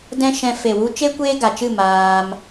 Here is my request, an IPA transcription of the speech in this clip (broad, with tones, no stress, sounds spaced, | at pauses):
d ɛ̃˦ ʃ ɛ̃˧ f e˨ w u˧ t͡ʃ e˦ kʷ eː˦ ɡ a˨ t͡ʃ ɨ˦˨ m aː˧ m